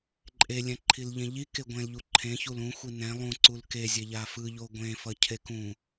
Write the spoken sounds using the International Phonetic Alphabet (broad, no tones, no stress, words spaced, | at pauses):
ǃʼe lʲɛ̃ǃʰilʎẽʎi keɡʷẽl ʎuǃʰẽ çulũ xʷinɛ̃ lˠũ ǀulke zʲeʎafɯ ʎoɡʷẽ fʌcʰekũ